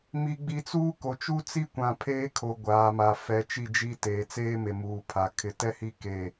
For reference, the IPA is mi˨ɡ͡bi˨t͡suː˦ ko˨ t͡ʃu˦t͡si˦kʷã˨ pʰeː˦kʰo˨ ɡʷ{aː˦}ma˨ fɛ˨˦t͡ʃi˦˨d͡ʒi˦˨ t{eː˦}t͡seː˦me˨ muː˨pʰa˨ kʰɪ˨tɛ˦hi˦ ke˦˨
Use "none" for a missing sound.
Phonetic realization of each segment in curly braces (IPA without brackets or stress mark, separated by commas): aː˨, eː˨